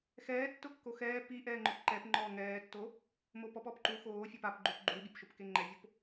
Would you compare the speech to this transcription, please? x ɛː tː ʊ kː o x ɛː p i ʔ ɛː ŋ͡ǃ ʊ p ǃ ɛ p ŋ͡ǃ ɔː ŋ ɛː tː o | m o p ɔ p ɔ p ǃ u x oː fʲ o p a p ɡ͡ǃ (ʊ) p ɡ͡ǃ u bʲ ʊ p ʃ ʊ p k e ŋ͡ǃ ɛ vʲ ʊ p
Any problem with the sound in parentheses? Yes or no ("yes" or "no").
yes